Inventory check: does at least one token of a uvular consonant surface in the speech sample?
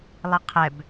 yes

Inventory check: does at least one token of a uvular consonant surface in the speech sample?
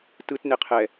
yes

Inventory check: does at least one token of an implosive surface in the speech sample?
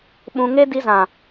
yes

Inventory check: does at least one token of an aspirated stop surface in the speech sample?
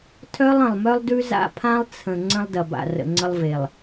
yes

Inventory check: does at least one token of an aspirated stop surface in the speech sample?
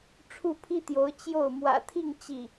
yes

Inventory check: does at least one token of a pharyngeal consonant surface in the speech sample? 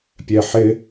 yes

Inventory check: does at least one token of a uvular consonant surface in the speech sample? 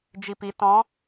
no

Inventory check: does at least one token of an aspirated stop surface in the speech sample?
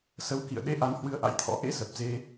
yes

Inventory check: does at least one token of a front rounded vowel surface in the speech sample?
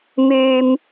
yes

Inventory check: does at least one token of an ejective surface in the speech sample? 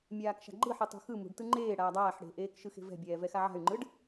no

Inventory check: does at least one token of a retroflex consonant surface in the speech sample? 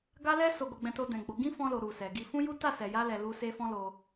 no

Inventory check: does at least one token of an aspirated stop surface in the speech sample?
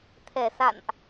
yes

